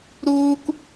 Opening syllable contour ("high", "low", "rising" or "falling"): high